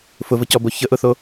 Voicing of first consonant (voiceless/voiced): voiceless